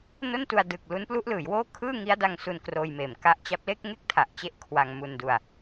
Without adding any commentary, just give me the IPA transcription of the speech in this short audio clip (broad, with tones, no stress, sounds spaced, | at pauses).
n o˥˩ n t u˧ a̯ d ɯ˨˩ k̚ l u˦˥ n p l u˦˥ ʔ l ɯː˩˦ j w oː˥˩ kʰ ɯː˥˩ ŋ i˦˥ a̯ d a˧ ŋ s u˧ n k r oː˧ j m eː˨˩ m k a˦˥ ʔ t͡ɕ a˦˥ p̚ l e˥˩ k̚ ŋ e˥˩ k̚ tʰ a˨˩ ʔ t͡ɕ e˦˥ ʔ kʰ w a˧ ŋ m u˧ n d u˧ a̯